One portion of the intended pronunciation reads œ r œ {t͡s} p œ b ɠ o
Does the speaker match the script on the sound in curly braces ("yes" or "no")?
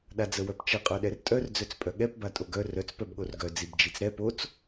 yes